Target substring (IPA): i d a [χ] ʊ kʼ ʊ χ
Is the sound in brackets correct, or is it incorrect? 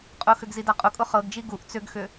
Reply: incorrect